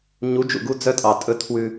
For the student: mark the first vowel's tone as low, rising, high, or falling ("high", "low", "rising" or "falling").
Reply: rising